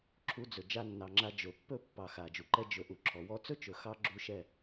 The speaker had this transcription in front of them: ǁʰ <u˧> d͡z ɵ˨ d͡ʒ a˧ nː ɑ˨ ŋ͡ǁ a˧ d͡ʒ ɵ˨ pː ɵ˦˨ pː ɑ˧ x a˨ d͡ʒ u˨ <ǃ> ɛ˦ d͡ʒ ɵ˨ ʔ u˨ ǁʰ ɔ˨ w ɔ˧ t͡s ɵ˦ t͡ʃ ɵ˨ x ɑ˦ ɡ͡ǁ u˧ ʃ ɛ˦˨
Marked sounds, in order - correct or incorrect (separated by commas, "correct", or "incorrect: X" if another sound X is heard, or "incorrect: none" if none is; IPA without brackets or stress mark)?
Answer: correct, correct